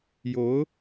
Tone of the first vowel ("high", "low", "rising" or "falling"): rising